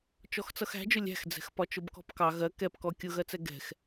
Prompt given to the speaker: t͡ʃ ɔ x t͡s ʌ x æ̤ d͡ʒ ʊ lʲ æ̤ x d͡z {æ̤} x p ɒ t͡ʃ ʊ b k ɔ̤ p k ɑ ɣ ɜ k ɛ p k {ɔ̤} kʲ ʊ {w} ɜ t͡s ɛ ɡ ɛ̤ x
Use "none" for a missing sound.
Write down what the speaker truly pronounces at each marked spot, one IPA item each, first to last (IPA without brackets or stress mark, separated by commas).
ɛ̤, ɔ, ɣ